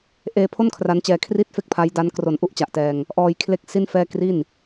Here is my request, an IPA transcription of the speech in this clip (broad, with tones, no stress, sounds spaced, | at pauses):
ʔ eː˧ pʰ o˥˩ n kʰ r a˦˥ n t͡ɕ ɛː˧ kʰ r i˥˩ t̚ f e˥˩ k̚ pʰ a˦˥ j d a˦˥ n k r o˨˩ n ʔ u˥˩ ʔ t͡ɕ a˨˩ ʔ t ɛː˧ ŋ | ʔ ɔː˧ j kʰ l e˦˥ k̚ s i˥˩ n f ɛː˥˩ k r i˥˩ n